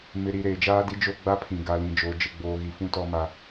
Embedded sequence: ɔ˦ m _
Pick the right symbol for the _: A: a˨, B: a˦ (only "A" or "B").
B